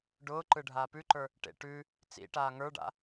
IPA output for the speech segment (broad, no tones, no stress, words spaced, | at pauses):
ɖʊːǃɯ ɖʱaːpʉǃə˞ | ʈḛ ʈʉ | t͡sḭʈaː ŋə˞ɖa̰